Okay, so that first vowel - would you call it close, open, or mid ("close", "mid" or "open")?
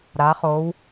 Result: open